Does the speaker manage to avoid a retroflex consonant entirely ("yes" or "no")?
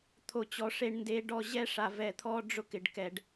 no